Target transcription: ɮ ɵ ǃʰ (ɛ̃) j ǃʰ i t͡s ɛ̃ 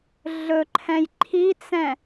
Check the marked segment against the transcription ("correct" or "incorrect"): correct